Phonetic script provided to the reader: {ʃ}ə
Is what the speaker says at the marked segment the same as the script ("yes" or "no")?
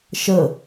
yes